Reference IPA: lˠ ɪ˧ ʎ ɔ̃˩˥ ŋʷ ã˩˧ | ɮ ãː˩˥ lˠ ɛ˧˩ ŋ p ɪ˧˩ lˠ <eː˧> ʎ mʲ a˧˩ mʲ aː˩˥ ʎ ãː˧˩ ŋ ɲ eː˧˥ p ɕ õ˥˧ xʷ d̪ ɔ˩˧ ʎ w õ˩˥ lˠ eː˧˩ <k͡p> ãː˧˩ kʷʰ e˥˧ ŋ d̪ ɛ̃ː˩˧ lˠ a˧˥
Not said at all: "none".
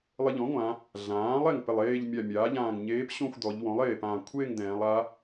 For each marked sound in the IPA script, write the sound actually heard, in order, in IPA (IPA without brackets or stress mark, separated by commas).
eː˥˧, p